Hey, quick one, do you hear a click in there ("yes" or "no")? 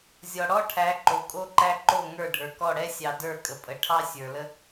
yes